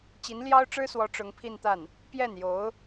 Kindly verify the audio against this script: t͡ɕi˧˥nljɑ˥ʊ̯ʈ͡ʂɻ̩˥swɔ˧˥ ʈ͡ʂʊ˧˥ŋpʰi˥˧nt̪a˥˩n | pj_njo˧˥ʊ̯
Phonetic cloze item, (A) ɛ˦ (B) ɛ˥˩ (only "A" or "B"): B